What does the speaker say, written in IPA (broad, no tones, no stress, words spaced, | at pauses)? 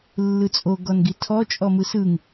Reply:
lːɯt͡sʼoɡɔn ɡitʰɔ t͡ʃʼɔmɯsɯŋ